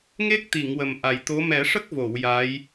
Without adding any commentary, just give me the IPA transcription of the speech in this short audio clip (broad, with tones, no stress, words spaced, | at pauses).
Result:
ŋe˦˥k̚t̪i˨˩˨ŋ wə˨˩mʔa˨˩jt̪o˧˥ mɛ˨˩˦ʂə˦˥k̚vo˨˩˨w ja˧˥j